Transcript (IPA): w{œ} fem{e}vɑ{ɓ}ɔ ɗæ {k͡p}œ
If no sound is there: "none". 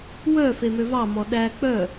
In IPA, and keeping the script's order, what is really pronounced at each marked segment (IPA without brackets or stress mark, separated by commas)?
œ, ø, m, k͡p